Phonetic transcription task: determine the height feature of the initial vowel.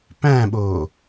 low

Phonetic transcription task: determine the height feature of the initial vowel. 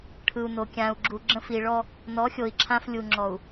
high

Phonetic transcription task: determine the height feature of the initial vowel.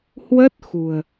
mid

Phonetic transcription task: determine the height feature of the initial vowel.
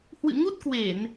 high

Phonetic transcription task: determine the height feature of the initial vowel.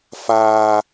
low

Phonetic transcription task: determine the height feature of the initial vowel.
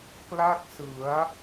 low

